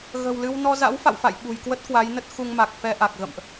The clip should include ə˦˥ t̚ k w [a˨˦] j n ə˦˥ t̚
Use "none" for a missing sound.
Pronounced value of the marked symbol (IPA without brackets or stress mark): a˨˦